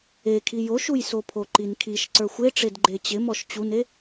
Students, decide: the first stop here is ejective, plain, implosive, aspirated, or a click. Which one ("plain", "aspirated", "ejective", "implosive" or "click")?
aspirated